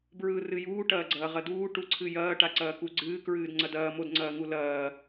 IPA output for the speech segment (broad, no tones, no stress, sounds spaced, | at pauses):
b ɹ ɯː r ɨ j uː ʈ ɐː ɡ͡ǀ ɐː ʁ ɐ d uː ʈ u ǀʰ ɨ j ɐː ʈ a ǀ ɐː k u ɡ͡ǀ ɨː k ɹ ɨː d ŋ͡ǀ ɐ d ɐː m o d ŋ͡ǀ ɐː ŋ u l ɐː